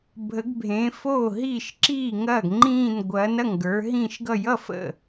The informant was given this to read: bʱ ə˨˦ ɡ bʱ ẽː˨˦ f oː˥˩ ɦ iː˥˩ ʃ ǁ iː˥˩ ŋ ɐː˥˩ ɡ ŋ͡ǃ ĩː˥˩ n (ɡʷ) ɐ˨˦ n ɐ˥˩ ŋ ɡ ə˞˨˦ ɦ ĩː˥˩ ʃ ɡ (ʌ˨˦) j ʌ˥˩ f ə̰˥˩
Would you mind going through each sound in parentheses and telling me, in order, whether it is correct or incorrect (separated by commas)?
correct, incorrect